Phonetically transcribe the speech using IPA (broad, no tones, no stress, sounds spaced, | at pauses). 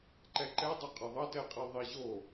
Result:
ǃ ɛ ǃ ɛ dˤ o qʼ ʌ ðˤ ʌ t ɛ qʼ i ðˤ i ʑ o